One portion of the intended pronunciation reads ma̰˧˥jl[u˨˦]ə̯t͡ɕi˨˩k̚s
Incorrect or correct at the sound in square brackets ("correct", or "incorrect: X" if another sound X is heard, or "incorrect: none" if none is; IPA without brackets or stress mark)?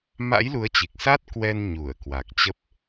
correct